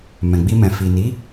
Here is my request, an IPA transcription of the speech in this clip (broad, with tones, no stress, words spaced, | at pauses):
mɛ̃˨ɡ͡bi˧mɛ̃˨ fi˨ ni˨˦